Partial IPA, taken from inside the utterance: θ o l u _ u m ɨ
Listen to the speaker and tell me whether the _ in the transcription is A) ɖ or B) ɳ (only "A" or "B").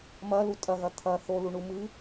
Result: B